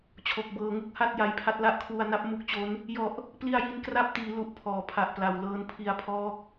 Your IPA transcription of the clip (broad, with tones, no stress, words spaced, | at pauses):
t͡ɕʰo˨˩k̚bɤː˨˩ŋu˥˩k̚ha˥˩t̚ ja˧jpʰa˦˥t̚la˥˩ʔ kʰwu˧a̯na˦˥p̚ mu˦˥k̚t͡ɕo˦˥n | jɔ˨˩ʔ | pli˧a̯ji˧nkra˦˥p̚tiː˩˦ lu˨˩ʔpʰɔː˩˦pʰa˨˩ʔpla˨˩w lɤː˧npʰi˧a̯pʰɔː˦˥k̚